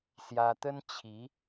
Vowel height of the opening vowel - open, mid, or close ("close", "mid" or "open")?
open